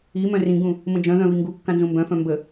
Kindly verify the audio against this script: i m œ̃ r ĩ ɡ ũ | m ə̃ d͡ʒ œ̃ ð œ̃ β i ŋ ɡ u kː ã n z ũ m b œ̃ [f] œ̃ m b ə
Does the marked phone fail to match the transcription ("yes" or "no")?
no